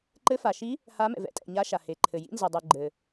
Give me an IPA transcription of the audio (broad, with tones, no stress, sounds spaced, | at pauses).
ǃ ɘ˨˦ f a˩ ʃ i˨˦ | h a˨˦ m ɛ̰˩ v ɛ̰˨˦ tʼ ɛ̰˩ ɲ a˨˦ ʃ a˩ h e˩ ǃʰ ɘ˩ j ḭ˨˦ n z e˩ dˤ u˩ ɡ͡ǃ ɘ˩